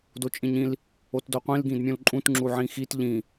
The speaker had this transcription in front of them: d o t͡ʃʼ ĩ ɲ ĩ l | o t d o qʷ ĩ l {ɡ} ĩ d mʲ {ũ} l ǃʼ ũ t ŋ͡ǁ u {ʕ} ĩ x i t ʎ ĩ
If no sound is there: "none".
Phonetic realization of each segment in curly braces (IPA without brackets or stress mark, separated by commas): ɡ, ũ, ʕ